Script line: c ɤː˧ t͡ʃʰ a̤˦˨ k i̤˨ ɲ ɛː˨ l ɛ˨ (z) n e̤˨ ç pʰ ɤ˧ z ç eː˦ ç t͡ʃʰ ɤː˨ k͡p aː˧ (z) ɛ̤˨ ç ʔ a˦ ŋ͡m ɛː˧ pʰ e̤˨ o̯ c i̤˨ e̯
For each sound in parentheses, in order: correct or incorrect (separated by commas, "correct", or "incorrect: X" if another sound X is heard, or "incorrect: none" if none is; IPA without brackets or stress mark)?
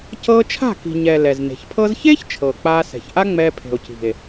correct, incorrect: s